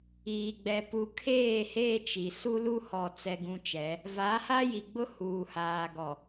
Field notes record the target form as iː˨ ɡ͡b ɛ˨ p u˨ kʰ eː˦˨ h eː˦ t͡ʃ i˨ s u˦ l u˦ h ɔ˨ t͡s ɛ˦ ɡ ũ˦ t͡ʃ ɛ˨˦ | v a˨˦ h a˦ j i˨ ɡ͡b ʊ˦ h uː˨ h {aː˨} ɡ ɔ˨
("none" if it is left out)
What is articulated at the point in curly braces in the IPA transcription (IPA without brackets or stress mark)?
aː˨